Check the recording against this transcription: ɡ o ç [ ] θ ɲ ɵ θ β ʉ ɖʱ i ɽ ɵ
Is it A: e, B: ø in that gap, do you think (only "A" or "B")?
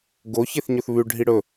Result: A